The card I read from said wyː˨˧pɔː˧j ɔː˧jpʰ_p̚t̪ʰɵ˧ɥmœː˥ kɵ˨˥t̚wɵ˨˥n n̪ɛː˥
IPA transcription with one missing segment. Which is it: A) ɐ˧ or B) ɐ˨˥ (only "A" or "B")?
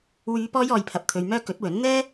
A